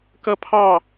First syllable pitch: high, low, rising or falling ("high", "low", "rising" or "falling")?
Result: falling